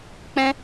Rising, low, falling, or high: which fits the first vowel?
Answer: high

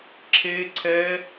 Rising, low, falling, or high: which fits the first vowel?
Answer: high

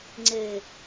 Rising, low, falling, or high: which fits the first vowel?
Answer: low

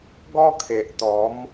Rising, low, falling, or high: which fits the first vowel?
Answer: high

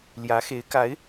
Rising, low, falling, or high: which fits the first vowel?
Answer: rising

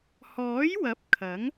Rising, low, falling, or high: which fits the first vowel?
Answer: rising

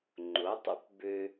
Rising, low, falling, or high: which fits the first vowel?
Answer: rising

